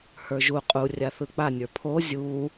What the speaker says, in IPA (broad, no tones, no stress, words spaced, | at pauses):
hə˞ʒu qʼu rʲaθɯk͡pa nʲə˞pʰo zʲu